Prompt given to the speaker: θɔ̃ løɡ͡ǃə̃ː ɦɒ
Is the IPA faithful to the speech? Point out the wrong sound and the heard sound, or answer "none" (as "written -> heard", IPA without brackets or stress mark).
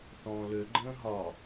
none